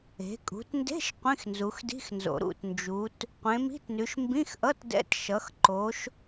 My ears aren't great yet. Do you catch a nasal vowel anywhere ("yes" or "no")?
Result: yes